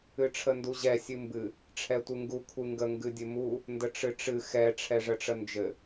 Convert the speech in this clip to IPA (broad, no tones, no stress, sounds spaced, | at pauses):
ɨ ʈ͡ʂʰ ə n d u ʑ ɛ sʲ ɨ m b ɨ | ʈ͡ʂʰ ɛ tʷ ɨ ŋ ɡ u kʷʰ ɨ ŋ ɡ ə ŋ ɡ ɨ dʲ ɘ m u | n d ə ʈ͡ʂ ɨ ʈ͡ʂ ɨ x ɛ ʈ͡ʂʰ ɛ ʐ ə ʈ͡ʂ ə n d͡ʒ ɘ